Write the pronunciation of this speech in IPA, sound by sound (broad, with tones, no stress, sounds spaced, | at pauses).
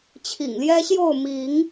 t͡ɕʰ ḭ˨˩ ŋ l j ɛ˦ ɕ j o˥˨ ʊ̯ m i˨˦ ŋ